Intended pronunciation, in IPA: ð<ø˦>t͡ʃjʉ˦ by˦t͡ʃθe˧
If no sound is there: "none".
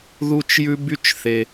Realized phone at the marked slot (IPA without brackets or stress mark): u˦